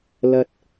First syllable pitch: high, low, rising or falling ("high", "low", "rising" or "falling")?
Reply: high